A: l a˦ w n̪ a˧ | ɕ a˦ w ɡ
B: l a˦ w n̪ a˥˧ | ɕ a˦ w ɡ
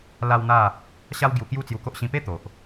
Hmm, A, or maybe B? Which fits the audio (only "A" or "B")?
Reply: B